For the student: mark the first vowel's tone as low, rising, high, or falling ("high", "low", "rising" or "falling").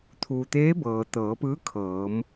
low